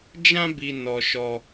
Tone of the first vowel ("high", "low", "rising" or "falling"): high